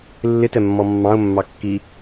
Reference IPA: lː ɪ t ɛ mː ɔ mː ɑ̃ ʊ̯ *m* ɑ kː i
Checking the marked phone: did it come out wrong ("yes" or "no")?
yes